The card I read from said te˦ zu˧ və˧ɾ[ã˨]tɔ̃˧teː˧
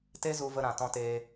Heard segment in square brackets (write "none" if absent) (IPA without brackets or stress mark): ã˨